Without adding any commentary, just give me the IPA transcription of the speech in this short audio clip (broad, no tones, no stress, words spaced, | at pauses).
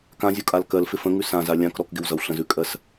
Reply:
kãzʲukʼal kɜlfɪ fə̃ŋʉ sãza lʲãk ɾɔkɡɪwzʌw ɬə̃zʉkʼɜs